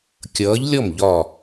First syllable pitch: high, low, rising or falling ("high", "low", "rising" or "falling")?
rising